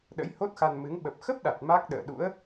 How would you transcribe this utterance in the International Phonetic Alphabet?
ɗ ə̰˧˥ j h o˦˥ t̚ x a˧ n m ɨ˨˦ ŋ ɓ ə˨˩ p̚ x ə˦˥ p̚ ɗ a˨˩ t̚ m a˦˥ k̚ ɗ ə̰ː˧˨ ɗ ṵ˧˥ ə̯

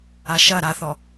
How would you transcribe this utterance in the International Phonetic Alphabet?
a ʃ ɐ ɾ a θ ɔ

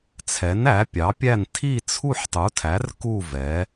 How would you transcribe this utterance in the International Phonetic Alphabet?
t͡sʰ ɛ˨˥ n æ˨˥ pʲ ɑ˨˥ pʲ æ˥˧ n tʰ i˥˧ t͡sʰ u˥˧ ħ tˤ u˨˥ tʰ æ˨˥ r k u˥˧ v ɛ˨˥

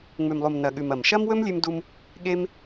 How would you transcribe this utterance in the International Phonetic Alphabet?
ŋ͡m ʉ˨ m lˠ u˨ m n ɐ˨ ɠ ʉ˨ m ɐ˨ m ʃ ɐ˦ m w ɵ˦ m lʲ ʉ˧ m d u˧ m | ɠ e˧ m

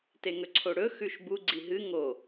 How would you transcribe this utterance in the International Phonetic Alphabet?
t e ŋ ɵ ǀʰ o ɽ ɵ x ʉ ʃ b u ɡ͡ǀ i ɦ ɨ ŋ o

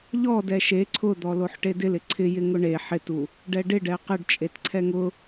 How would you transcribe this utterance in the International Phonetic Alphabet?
ʎ ɔ d ɛ ʃ e ǀʰ ʊ d̪ ɔ l o ħ ʈ e d ɪ l ɪ ǀʰ ɪ j ɪ ŋ ʊ ɳ e ħ ɪ t u | ɖ ɛ ɖ ɪ ɖ ɛ q ɪ ɖ t͡ʃʼ e t ǀʰ ɛ ŋ ʊ

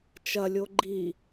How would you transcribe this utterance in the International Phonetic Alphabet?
t͡ʃ ɐ lʲ o ɡ͡ǃ i

